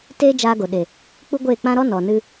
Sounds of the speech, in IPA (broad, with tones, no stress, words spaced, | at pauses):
teː˦d͡ʒaː˧ɡo˨ ɗe˨ | k͡pu˦ɡʷeː˦˨k͡pã˦ɾɔ˦ nɔ˨nɨ˧